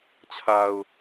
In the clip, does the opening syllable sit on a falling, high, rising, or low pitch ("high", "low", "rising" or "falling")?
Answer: low